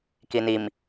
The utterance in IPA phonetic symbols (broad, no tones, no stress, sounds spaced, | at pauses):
k i n i m